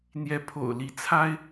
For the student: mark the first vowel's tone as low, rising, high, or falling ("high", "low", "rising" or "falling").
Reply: rising